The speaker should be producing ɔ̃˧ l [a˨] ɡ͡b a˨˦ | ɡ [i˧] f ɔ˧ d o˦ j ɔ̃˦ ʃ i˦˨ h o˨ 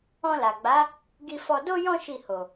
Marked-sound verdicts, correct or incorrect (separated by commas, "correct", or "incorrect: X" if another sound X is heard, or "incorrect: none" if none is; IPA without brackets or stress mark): correct, correct